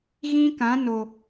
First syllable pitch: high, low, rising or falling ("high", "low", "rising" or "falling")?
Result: high